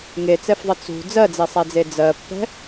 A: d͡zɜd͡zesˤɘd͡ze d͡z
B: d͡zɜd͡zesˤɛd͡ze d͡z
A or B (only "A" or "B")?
B